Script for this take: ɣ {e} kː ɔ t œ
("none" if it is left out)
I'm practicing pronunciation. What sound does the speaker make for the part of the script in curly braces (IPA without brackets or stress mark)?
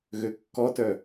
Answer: ø